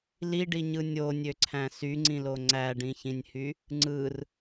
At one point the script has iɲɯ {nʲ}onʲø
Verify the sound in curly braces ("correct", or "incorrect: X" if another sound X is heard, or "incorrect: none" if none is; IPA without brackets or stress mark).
correct